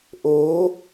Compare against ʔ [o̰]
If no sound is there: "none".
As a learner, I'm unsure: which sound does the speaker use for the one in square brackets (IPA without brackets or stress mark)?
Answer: o